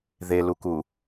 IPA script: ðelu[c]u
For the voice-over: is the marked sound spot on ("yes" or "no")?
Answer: no